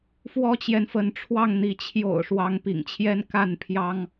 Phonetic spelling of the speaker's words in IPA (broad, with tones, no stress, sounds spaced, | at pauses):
f w ɔ˦ t͡ɕ j ɛ˨ n f ə˨˦ n ʈ͡ʂʰ w ɑ˥˨ ŋ n̪ i˨˦ t͡ɕʰ j o̰˨˩ ʊ̯ ʂ w ɑ˨˦ ŋ p ḭ˨˩ ŋ t͡ɕʰ j ɛ˦ n k a˥˨ n pʰ j ɑ˦ ŋ